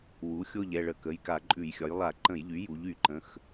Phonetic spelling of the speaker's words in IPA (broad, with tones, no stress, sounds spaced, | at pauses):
w u˩˥ xʲ o˥˨ ʎ ɛ˥˨ ɭ ə˧˩˧ k ə˩˧˩ j k a˧˩˧ ǃʼ ʉ˧˩˧ j xʲ ɒ˩˥ j lˠ a˧˩˧ ǃ ə̃˧˩˧ j ʎ y˩˥ j u˩˥ ʎ y˧˩˧ ǃ ə̃˩˧˩ x